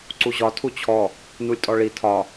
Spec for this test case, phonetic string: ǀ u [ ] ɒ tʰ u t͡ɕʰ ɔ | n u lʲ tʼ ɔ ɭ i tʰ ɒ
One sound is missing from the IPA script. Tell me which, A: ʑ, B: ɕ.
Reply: A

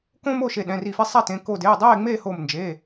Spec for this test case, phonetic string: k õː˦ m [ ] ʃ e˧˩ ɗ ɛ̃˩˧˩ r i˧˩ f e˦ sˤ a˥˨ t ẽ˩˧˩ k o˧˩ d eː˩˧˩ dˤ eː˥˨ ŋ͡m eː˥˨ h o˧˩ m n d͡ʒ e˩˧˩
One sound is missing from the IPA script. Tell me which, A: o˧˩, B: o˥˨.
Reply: B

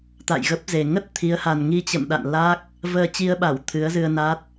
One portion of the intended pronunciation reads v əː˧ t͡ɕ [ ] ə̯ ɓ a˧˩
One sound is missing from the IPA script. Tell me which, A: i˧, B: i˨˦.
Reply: A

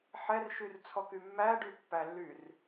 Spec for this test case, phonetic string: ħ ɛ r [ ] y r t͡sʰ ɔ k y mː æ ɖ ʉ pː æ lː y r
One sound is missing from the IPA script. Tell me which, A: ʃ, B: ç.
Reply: A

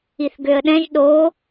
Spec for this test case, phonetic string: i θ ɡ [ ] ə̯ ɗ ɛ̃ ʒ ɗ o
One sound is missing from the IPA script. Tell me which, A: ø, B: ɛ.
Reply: A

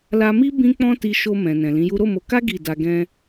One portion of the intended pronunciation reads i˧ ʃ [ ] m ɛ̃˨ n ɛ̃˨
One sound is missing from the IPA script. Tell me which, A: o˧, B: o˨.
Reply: A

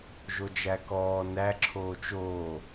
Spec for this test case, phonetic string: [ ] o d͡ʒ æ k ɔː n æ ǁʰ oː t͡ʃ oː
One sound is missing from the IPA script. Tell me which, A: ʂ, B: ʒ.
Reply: B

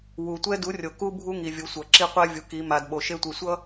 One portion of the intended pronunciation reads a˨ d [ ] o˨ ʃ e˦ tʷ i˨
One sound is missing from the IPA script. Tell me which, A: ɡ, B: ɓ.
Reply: B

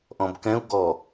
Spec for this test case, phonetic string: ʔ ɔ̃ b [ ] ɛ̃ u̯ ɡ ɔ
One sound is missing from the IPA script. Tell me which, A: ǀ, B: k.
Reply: B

